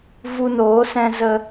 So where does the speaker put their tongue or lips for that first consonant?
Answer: lips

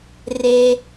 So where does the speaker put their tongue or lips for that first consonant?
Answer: tongue tip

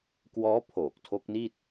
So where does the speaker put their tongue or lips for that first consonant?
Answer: velum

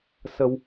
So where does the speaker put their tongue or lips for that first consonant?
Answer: tongue tip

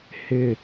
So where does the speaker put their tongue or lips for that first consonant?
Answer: throat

